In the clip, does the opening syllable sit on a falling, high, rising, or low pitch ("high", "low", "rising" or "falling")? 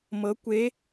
rising